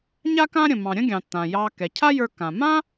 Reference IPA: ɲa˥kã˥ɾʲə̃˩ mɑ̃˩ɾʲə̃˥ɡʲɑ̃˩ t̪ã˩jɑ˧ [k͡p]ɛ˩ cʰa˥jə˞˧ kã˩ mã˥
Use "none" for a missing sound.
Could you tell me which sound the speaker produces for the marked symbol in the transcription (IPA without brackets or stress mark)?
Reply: k